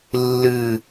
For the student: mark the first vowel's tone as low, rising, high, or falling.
falling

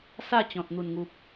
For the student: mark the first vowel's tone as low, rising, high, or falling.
falling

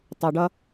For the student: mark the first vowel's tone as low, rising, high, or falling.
low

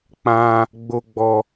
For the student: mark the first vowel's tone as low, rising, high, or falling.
high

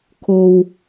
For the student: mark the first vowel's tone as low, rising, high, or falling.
low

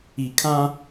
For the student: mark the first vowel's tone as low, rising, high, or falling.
low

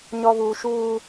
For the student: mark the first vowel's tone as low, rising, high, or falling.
low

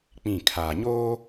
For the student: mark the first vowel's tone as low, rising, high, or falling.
falling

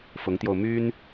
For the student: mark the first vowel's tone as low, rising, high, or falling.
rising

